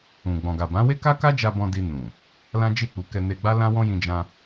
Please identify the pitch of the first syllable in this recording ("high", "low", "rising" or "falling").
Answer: low